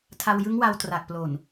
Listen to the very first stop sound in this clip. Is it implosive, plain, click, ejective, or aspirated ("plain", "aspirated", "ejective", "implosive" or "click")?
aspirated